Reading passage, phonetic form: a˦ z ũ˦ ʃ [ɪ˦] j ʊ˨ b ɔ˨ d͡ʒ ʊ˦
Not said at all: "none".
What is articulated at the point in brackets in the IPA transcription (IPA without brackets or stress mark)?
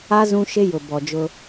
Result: ɪ˦